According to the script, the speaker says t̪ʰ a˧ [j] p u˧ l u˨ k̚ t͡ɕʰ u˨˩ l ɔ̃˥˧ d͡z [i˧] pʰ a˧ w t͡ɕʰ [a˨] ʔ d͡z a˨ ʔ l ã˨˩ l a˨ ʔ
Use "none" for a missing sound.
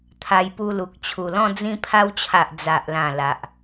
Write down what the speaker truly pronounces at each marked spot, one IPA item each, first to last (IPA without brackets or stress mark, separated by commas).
j, ĩ˧, a˨